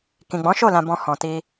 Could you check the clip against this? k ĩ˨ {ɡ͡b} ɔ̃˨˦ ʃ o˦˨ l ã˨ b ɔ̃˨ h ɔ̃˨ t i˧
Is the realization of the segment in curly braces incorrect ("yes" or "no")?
no